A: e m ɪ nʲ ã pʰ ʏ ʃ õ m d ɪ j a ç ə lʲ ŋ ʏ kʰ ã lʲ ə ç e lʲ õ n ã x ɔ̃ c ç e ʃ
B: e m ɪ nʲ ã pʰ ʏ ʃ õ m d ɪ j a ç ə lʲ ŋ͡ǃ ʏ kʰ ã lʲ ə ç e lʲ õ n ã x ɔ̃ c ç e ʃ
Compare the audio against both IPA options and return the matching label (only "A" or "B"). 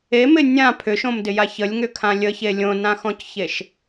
A